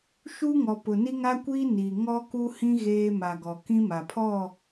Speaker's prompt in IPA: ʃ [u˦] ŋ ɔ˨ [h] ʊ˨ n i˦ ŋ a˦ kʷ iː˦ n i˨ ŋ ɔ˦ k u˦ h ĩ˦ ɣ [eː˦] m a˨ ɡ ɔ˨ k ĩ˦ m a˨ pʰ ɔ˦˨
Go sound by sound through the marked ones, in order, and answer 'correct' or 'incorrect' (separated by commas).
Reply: correct, incorrect, correct